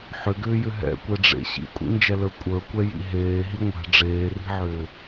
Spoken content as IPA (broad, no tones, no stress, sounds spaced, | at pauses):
ħ ʏ ɡ ʏː j ʏ ɦ ɛ̰ kʷ ɛ ɖ͡ʐ ḛ ɕ ḭ kʷʼ ḭ n d͡ʒ ɛ l ə˞ kʷʼ ə˞ kʷ ɛ j ḭ ɦ eː ɦ i ŋʷ ɛ̤ ɖ͡ʐ eː r i̤ ʕ ʏː